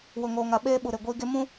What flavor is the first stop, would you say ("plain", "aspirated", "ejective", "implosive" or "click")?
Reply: implosive